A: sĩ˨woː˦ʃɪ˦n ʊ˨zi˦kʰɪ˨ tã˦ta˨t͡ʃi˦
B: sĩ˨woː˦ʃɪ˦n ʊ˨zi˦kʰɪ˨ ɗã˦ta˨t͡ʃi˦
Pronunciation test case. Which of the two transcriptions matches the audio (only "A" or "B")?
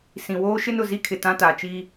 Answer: A